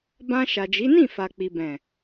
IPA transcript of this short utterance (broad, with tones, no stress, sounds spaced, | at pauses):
b ã˧ ʃ a˨ d͡ʒ i˨˦ n ĩ˦˨ f a˨ k͡p i˨ b ɛ̃˨